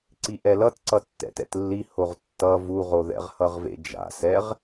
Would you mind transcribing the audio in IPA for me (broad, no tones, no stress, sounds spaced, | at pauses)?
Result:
ǀ i ʔ ɛ l ʌ t ǀ ʌ tː ɛ̰ t ɛ̰ t lː i h o ʁ tː ʌ v u ʁ o ð ɛ̰ ʁ h ʌ ʁ v ḛ d͡ʒ a̰ s ɛ ʁ